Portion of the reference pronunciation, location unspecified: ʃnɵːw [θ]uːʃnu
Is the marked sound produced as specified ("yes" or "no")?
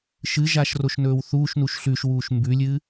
yes